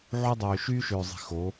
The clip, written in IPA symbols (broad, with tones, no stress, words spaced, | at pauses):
ʕu˦dˤøː˨ ʃyː˦ʃøː˨zˤi̤˨ xo˨˦